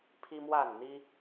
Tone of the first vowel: high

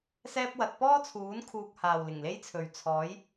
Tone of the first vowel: high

